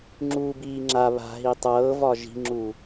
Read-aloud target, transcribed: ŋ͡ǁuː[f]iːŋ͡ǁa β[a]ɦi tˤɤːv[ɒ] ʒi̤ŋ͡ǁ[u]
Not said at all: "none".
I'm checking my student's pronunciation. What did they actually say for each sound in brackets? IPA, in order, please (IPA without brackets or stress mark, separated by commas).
b, a̤, ɒ, u